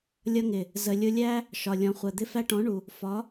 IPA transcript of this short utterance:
lʲ ʌ˧ ŋ ɪ˨ | z ə˨ lʲ ʊ˧ lʲ æ˦ | ʃ ɒ˨ lʲ ɔ̃˨ χʷ ɜ˨ d̪ ɪ˧ f æ˧ ʈ ɔ̃˨˦ ɳ u˨ | f ɒ˨˦

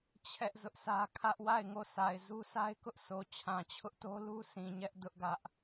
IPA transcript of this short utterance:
t͡ɕʰ ɛ˦ ʔ z ʊ˦ ʔ sʰ ä˦ kʰ ä˦ ʔ w a˦˨ ɪ̯ ŋ o˦˨ s a˨ ɪ̯ z u˦ sʰ a˦ ɪ̯ k ʊ˦ ʔ s o˨ t͡ɕʰ ã˨ t͡ɕʰ ʊ˦ ʔ t o˦ l u˦ s ĩ˨ ɲ ɛ˦ ʔ d ʊ˦ ʔ ɡ ä˦ ʔ

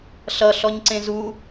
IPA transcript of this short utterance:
ɬ ʌ ɬ ɔ ɲ ǀ ẽ z u

